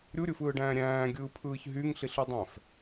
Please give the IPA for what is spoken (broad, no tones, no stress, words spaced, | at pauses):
ɾʲuɾʲɯfɯːɖæ̃ː ɾʲæ̃ːɡʲɯːpʰɯːç ɦyŋɬiɬɯdˤæ̃f